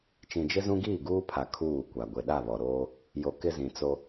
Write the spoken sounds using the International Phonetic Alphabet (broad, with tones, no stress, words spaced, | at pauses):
t͡ʃĩ˨d͡ʒɪ˦zũ˦ ɡiː˦˨ɡuː˦pʰa˨ kʰuː˦˨kʷa˨ ɡʷe˨ɗa˦˨ βɔ˨ɾoː˦ | jo˨ kɪ˦zĩ˨ t͡so˦